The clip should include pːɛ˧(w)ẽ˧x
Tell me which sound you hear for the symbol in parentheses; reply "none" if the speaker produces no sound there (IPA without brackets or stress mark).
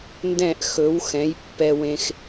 w